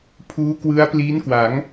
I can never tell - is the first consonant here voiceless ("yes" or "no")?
yes